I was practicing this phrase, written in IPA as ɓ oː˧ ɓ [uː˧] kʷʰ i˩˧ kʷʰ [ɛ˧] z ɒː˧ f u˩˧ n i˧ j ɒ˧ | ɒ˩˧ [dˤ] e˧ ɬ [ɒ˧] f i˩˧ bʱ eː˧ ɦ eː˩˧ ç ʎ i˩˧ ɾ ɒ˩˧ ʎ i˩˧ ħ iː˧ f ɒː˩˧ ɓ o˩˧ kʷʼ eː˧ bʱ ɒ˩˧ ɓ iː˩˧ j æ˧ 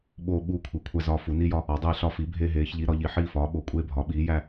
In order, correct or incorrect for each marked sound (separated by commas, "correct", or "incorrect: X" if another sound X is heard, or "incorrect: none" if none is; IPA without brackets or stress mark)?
correct, incorrect: æ˧, correct, correct